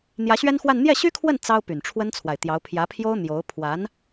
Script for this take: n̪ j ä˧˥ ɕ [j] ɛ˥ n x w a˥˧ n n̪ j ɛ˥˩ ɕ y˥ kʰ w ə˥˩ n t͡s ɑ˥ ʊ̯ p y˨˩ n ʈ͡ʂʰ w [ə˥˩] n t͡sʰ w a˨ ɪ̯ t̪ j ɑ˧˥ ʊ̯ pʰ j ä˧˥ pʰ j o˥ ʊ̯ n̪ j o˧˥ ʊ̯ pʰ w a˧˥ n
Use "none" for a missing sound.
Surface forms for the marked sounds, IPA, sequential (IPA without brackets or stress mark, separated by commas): ɥ, ə˥